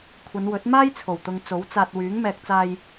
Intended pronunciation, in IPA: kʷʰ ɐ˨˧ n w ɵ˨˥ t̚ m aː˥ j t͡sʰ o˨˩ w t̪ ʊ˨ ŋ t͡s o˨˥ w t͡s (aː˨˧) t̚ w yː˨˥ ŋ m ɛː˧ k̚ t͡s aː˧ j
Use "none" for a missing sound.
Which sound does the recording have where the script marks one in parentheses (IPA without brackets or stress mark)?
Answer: aː˧